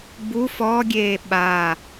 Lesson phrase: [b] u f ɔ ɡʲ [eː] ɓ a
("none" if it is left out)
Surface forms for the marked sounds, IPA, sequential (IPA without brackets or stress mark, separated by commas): b, eː